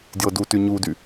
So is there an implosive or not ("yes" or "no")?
no